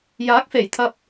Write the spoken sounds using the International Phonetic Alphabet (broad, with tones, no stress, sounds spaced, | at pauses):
j aː˨˥ k̚ f e˨˩ j t̪ʰ ɐ˨ p̚